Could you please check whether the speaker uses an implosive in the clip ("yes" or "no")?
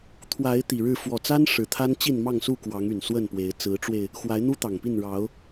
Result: no